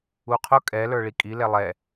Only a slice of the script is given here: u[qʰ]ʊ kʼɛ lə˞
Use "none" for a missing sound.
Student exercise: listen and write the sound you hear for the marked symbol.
qʰ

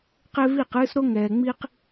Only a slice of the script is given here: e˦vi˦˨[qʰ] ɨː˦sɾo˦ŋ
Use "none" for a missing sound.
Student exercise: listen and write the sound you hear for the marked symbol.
q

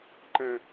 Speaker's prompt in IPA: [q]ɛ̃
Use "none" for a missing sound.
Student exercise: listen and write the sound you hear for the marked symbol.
ǃ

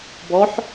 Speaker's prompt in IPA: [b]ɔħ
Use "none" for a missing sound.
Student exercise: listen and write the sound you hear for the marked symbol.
b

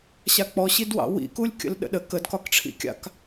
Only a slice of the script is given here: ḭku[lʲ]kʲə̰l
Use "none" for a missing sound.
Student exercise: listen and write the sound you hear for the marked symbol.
lʲ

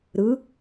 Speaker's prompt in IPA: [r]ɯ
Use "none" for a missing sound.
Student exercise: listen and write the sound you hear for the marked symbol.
ɾ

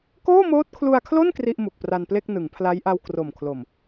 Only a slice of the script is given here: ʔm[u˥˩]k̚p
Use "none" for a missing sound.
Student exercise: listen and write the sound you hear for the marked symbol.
u˨˩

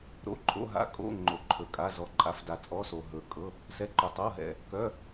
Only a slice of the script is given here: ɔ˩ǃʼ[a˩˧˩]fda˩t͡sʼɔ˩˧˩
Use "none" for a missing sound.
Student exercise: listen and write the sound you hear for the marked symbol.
a˩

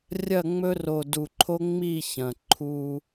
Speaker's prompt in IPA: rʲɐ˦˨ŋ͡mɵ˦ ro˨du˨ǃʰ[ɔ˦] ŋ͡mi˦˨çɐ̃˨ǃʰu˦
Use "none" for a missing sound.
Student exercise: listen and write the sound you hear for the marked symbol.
o˦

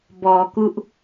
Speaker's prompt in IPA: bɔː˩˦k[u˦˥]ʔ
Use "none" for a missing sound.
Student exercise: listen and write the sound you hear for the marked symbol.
u˦˥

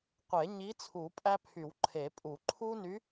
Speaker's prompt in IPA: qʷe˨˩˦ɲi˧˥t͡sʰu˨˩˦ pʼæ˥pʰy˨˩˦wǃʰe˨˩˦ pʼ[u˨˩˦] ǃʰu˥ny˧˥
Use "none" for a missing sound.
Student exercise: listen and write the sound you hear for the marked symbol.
u˨˩˦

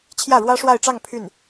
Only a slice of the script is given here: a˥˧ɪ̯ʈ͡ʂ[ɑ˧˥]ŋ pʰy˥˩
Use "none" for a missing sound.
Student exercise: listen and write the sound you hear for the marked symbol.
ɑ˥˧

